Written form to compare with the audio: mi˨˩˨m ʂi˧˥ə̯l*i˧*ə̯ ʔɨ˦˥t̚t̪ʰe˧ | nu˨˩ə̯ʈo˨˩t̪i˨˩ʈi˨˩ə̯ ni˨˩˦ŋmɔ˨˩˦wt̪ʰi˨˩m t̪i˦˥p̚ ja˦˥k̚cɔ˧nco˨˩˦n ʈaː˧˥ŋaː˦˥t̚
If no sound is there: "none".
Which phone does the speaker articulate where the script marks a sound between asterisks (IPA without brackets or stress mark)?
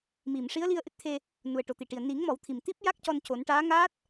i˧